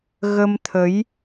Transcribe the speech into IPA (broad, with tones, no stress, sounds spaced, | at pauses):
ɣ ə˧ m t̪ʰ ə˨˦ j